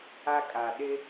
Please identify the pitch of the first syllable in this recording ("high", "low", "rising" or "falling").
high